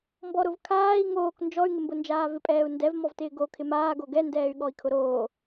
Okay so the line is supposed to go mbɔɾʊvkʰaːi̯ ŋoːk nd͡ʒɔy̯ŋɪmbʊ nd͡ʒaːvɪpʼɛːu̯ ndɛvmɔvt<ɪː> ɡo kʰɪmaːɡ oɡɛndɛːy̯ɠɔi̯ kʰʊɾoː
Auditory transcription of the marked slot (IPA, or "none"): ɪː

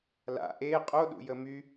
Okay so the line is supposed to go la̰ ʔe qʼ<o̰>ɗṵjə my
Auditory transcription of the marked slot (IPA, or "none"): o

